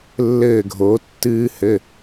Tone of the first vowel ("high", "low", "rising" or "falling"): falling